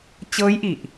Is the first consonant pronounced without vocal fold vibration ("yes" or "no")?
yes